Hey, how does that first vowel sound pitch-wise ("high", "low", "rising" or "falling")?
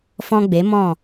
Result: high